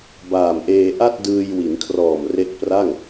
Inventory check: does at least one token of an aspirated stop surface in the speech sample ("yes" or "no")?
yes